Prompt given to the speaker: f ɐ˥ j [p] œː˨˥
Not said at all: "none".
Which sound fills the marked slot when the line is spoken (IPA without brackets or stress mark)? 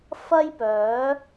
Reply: p